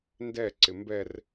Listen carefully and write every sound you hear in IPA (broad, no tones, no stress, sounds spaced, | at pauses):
n d ɛ ǀ ɪ m b ɛ r